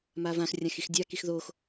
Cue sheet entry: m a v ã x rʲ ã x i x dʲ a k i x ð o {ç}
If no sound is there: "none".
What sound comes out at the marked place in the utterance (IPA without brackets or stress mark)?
x